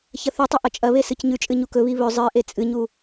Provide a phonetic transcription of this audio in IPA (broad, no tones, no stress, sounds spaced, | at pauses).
ç ɐ θ ʉ tˤ ɐ ʔ ɐ t͡ʃʼ ɐ β e s ɨ c ɲ ʉ t͡ʃʼ ɨ ɲ u k ɵ β i β ɵ zˤ ɨ ʔ e t͡sʼ ɨ ɲ u